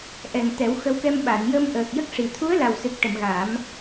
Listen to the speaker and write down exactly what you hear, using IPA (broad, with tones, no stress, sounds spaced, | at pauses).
ʔ ɛ˨˩ ŋ t̪ ɛ˨˩˦ w x ə˧˥ w k ɛ˧ m ɓ a˨˩˨ n j ə˧ m ʔ əː˨˩ k̚ j ə˦˥ k̚ ʂ i˨˩ t̪ʰ u˧˥ ə̯ l a˨˩ w s ɨ˨˩ k̚ ʈ ə˨˩˨ m ɣ aː˨˩˦ m